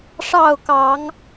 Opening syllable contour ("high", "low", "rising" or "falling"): falling